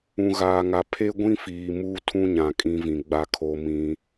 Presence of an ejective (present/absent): present